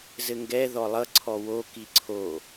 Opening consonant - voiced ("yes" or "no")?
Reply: yes